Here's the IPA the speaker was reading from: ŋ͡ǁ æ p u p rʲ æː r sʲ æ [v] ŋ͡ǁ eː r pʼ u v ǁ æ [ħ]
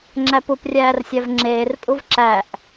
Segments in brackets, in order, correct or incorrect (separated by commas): correct, incorrect